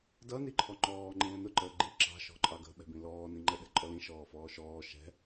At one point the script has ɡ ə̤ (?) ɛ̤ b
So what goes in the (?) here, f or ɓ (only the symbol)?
ɓ